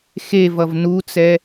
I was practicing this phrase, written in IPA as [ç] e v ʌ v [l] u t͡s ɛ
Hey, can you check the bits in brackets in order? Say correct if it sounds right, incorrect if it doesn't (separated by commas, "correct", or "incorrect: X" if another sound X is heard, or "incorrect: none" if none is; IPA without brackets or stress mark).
incorrect: x, incorrect: n